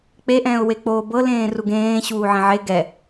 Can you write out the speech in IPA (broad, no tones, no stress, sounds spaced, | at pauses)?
k͡p e ʔ ɛ̃ː ʊ̯ w e k͡p oː b ɤ l ẽː r u ɡ ẽː ɕ uː ʕ ẽ ʕ e ɡ ɛ